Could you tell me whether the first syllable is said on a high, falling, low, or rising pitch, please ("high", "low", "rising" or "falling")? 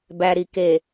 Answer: low